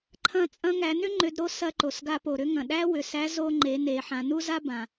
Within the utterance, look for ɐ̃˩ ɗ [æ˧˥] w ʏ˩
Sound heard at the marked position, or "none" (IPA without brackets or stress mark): æ˥